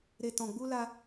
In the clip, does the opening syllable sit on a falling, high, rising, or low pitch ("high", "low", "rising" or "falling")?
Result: low